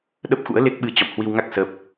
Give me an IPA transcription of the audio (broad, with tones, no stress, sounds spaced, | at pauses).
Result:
ɗ ə˦˥ p̚ x ṵ˧˥ ə̯ l e˦˥ k̚ ɓ ɨ˧ t͡ɕ ɔ̰˧˨ m h w i˧ w ŋ a˦˥ k̚ s ə˦˥ p̚